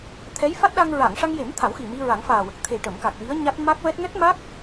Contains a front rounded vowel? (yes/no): no